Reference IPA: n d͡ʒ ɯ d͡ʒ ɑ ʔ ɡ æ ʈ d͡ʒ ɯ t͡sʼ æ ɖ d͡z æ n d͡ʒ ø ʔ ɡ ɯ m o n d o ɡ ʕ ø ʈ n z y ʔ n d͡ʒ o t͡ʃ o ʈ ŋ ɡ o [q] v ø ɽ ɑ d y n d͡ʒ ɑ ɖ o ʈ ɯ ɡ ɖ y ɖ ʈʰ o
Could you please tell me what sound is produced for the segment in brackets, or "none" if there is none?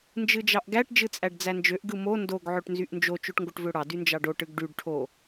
ʈ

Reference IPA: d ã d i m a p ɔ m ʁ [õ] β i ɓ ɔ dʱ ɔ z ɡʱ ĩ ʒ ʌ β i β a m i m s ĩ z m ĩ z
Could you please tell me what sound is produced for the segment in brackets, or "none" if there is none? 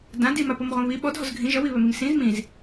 õ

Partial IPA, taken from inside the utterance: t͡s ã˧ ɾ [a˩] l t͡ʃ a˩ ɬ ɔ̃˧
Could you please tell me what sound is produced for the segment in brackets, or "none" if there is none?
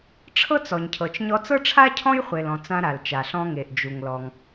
a˩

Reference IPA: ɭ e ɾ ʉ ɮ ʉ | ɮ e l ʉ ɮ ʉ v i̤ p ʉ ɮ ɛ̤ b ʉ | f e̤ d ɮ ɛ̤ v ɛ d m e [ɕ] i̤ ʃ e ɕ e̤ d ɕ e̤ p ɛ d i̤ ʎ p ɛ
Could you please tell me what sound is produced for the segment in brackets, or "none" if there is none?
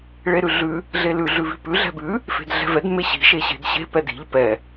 ɕ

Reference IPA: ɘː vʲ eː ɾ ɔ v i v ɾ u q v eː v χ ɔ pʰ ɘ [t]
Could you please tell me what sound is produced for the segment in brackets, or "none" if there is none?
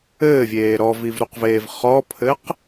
q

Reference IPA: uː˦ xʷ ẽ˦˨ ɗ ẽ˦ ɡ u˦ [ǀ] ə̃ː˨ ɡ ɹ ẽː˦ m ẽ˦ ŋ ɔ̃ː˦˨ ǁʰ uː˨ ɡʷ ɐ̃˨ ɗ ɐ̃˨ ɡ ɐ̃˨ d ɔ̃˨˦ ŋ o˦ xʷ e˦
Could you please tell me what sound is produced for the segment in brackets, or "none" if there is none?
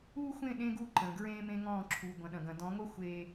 ǃ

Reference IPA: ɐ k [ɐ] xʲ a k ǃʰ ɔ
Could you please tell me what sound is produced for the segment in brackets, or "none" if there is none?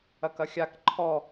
ɐ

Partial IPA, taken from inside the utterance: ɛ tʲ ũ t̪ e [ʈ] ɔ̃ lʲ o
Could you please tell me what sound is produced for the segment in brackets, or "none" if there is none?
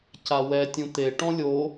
ʈ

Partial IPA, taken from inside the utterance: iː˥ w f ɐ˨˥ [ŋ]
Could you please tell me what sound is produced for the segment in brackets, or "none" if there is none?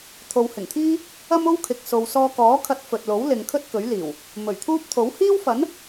n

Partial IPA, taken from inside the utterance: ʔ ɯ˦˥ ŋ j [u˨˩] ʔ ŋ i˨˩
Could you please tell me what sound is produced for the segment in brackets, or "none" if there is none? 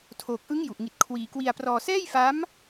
u˨˩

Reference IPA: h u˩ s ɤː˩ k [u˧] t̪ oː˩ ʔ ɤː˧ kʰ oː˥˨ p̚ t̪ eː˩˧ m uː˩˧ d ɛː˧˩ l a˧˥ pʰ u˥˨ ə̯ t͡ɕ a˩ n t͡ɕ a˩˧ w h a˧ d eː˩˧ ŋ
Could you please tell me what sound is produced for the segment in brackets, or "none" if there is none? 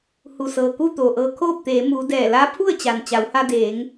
u˥˨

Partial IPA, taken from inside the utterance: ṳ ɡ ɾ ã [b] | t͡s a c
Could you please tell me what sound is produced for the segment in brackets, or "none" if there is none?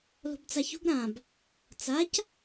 b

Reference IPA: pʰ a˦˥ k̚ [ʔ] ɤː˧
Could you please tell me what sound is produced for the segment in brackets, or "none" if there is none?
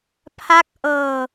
ʔ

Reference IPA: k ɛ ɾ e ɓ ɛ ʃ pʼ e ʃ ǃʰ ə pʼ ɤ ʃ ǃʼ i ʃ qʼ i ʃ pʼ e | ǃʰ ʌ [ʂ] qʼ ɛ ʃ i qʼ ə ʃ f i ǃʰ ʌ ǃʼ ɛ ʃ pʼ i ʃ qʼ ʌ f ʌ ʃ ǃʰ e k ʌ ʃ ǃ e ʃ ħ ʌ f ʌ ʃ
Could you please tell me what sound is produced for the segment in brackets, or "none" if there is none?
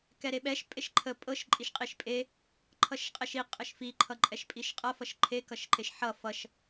ʃ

